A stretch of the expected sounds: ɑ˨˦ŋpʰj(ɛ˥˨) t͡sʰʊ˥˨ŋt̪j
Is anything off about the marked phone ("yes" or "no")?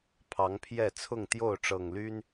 no